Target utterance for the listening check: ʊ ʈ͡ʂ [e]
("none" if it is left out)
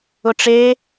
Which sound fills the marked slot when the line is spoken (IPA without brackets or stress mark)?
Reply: e